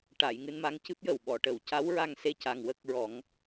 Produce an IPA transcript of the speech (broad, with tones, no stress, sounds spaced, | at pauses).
ʈ a˨˩˨ j ŋ ɨ˧ n m a˧˥ ŋ c ɨ˦˥ p̚ j ə˨˩ w ɓ ɔ˨˩˨ ʈ ə˨˩˨ w c a˧˥ w ɹ a˧ ŋ s e˧ c a˨˩ ŋ w ə˦˥ k̚ ɹ ɔ˨˩˦ ŋ